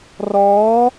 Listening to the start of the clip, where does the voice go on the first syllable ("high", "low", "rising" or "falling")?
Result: rising